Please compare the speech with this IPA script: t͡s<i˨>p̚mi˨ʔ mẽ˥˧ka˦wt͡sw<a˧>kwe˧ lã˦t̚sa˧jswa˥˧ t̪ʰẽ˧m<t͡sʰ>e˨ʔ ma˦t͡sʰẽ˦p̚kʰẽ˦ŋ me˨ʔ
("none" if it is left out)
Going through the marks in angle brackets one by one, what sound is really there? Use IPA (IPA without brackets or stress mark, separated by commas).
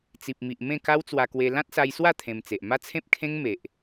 i˨, a˧, t͡s